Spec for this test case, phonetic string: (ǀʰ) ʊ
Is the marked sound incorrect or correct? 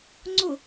incorrect